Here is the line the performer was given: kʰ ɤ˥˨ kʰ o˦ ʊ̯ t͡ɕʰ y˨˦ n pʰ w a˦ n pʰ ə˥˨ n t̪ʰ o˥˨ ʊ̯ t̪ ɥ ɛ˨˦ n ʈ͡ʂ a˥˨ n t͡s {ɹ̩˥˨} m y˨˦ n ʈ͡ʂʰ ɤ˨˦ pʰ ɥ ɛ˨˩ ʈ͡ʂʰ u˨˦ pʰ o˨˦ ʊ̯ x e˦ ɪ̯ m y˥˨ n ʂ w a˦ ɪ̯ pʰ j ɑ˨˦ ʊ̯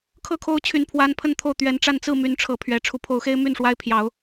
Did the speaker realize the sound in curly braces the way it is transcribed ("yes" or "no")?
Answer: yes